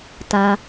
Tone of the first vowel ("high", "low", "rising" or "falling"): low